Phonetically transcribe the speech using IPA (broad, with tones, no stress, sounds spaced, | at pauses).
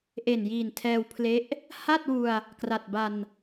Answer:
ʔ e˨˩ n j iː˨˩ n tʰ ɛː˧ w pʰ l e˦˥ ʔ | h a˥˩ t̚ w u˧ a̯ | k r a˨˩ t̚ b a˧ n